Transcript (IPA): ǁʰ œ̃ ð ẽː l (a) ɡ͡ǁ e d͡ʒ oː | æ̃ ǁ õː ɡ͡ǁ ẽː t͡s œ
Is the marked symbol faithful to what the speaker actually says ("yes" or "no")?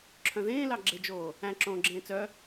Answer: no